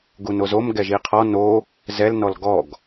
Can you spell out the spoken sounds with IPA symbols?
ɡ u n o z o m ɡ ɛ ʒ i qʰ ɔ n o | z ɛ l n ɔ l ɡ ɔ ɡ

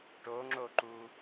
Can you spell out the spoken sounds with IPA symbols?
ʈ o ŋ͡ǁ o ǃ u

